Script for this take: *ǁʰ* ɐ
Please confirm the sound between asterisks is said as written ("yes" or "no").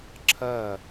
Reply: yes